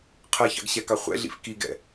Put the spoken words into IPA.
qʰ ɜ ç ɑ̰ ɡ ɕ ɛ k ɑ χʷ ɛ̰ ɮ ḭ f k i ɡ ɛ̰

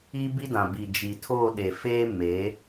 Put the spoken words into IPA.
iː˦ b i˦ d ã˨ b i˨ d͡ʒ i˨ tʰ oː˦˨ ɗ e˨ f eː˦ m e˨˦

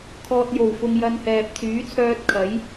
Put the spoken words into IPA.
kʰ ɔː˨ t̚ j o˨˩ w f ʊ˨ ŋ j ɐ˧ n h ɛː˨ p̚ t͡s yː˨˥ t͡sʰ œː˧ t̚ kʰ ɐ˨˥ j

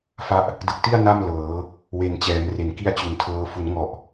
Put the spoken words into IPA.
f a˦˥ ʔ | d ɯ˨˩ k̚ t i˥˩ a̯ n a˥˩ m l ɤː˩˦ | w e˨˩ n t͡ɕ ɛː˩˦ m r e˩˦ n k i˦˥ a̯ t͡ɕ u˩˦ n tʰ ɤː˧ f u˩˦ n ŋ ɔ˨˩ ʔ

